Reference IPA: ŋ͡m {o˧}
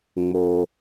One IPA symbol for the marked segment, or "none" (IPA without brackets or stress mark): o˧